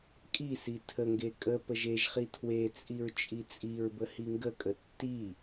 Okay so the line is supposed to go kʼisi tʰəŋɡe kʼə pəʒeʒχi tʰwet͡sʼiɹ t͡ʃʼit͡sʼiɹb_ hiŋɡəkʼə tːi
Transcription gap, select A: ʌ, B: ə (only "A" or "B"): B